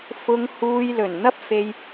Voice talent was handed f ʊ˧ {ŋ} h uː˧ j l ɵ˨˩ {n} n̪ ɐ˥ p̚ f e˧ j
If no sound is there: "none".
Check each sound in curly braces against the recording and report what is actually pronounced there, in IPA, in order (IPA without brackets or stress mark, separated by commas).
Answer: ŋ, n